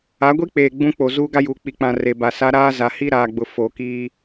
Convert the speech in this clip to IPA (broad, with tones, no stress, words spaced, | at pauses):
a˨˦ɡʷi˦k͡peː˨ ɡ͡bũ˦k͡po˨ zuː˦ɡa˦juː˨ k͡pi˨k͡pã˨ re˨ba˨sa˦ ɾaː˦za˨ hi˦ɾaː˨ɡ͡bʊ˨ fo˨ kiː˦